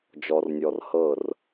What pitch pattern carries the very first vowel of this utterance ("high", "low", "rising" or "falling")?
low